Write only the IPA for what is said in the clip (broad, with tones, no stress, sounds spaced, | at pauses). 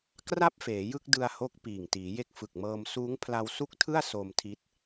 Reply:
k r a˥˩ p̚ f eː˩˦ j ɯ˥˩ k̚ d ɯ˧ a̯ h o˦˥ k̚ p iː˨˩ ŋ t iː˩˦ j e˦˥ k̚ f ɯ˨˩ k̚ m ɤː˧ m s uː˦˥ ŋ pʰ l a˧ w s u˥˩ k̚ tʰ ɯ˥˩ a̯ s o˧ m tʰ i˦˥ t̚